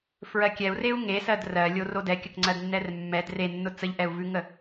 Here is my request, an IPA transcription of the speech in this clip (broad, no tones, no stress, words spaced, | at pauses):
fɹɜkʲɛu̯reu̯ ŋesɜd rɜlʲo rodɛkʲəkŋ͡ǀɜd nːɛrmːɛd renːʊ t͡səʎʔɛu̯vʉŋə